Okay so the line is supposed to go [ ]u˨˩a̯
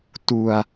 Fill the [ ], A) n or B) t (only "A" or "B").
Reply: B